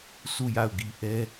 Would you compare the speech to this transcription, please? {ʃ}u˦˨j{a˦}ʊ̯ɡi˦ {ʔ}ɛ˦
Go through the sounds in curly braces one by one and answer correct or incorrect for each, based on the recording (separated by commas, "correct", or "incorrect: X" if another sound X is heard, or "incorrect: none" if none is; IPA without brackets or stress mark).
incorrect: s, incorrect: a˦˨, correct